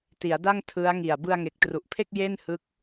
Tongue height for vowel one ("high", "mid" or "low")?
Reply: high